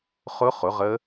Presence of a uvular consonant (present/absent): present